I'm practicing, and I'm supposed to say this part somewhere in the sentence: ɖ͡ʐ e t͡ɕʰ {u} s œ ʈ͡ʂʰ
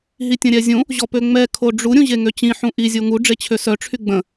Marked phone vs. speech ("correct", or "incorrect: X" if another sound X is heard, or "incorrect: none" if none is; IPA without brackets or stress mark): incorrect: ø